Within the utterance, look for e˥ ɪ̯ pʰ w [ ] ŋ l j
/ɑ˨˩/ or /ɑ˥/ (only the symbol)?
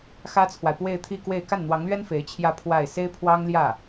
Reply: ɑ˥